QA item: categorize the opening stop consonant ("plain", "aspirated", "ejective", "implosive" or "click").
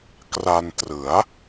plain